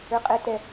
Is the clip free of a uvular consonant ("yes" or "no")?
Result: no